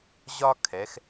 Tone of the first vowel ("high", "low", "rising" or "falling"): high